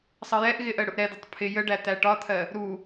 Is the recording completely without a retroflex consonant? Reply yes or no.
no